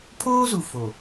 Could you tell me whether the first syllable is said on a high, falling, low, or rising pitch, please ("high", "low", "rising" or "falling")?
high